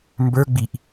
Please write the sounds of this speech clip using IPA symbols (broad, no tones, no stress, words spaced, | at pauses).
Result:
mbə˞ ɡ͡biʔ